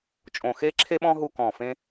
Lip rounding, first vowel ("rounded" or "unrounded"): rounded